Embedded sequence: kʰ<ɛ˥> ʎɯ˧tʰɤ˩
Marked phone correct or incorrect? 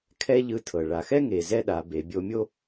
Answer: correct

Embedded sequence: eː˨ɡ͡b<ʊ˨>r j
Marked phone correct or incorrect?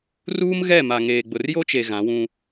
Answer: correct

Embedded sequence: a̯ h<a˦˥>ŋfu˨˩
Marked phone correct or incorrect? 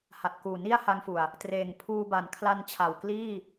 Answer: correct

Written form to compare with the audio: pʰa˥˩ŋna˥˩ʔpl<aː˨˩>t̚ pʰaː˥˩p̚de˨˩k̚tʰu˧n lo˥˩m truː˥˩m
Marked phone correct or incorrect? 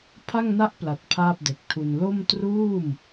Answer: incorrect: a˨˩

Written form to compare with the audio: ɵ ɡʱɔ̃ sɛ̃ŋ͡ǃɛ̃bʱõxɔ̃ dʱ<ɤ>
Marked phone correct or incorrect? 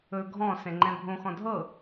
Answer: correct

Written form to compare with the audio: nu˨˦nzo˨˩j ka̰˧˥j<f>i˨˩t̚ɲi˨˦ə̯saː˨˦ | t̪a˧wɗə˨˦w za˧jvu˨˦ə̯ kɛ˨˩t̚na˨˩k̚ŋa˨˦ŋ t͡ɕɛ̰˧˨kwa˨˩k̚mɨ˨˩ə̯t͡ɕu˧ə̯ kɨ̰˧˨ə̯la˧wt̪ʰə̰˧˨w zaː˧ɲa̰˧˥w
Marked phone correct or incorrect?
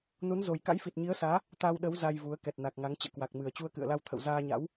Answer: correct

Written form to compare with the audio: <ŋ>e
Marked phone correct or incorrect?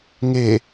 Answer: correct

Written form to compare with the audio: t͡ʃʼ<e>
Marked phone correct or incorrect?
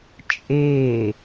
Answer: correct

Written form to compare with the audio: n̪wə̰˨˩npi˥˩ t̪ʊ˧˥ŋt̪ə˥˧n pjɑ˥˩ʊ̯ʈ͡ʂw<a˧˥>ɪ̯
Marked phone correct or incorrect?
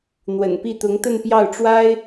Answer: incorrect: a˥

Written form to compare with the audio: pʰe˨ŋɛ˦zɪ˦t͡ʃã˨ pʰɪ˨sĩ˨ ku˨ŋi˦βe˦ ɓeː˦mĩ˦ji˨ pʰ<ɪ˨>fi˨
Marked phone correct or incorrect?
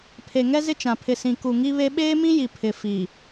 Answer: correct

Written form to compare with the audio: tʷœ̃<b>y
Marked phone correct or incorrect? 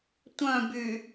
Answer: correct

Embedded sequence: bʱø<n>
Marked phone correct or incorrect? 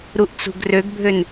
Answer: correct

